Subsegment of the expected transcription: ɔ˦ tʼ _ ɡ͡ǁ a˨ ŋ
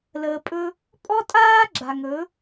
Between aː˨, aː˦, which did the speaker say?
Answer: aː˦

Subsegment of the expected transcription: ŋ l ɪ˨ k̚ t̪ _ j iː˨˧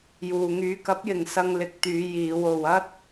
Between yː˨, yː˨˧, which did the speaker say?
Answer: yː˨˧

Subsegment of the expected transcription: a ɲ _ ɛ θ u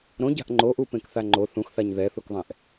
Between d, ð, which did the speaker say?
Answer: ð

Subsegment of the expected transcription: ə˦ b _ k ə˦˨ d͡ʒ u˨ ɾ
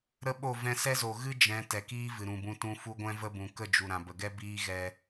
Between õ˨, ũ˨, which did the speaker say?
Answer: ũ˨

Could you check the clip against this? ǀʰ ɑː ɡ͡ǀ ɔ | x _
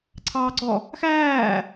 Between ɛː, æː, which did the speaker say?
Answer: æː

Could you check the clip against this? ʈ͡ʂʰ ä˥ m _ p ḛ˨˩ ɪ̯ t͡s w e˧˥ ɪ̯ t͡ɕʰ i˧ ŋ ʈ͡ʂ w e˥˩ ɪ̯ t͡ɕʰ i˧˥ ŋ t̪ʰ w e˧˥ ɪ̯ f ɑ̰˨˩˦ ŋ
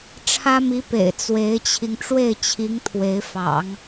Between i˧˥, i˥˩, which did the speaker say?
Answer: i˧˥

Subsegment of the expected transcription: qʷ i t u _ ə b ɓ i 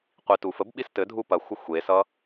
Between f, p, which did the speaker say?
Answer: f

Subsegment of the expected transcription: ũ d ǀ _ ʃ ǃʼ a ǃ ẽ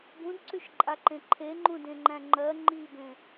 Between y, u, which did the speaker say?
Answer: y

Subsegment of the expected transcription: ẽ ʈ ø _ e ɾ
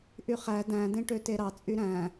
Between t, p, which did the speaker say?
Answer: t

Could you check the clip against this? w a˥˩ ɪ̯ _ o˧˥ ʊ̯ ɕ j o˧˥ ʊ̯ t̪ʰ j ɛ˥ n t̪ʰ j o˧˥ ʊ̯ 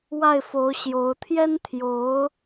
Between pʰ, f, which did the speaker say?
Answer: f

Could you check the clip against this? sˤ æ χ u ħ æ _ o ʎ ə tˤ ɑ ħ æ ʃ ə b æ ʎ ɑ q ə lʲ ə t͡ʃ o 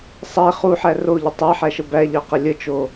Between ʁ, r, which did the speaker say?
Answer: r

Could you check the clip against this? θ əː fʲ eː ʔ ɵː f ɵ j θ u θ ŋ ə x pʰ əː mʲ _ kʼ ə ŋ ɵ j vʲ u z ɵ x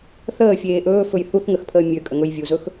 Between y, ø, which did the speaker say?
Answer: ø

